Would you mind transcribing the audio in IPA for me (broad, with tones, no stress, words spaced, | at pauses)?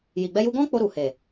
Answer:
ji˨ɡ͡bɛ˧ju˧ɡɔ̃˦ k͡po˧ɾu˨he˨